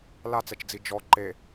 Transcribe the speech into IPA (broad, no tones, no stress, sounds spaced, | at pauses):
l a t͡s ɛ t͡ʃ d͡z i d͡ʒ ɔ ǃ e